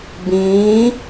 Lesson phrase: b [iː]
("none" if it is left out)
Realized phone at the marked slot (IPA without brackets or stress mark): ĩː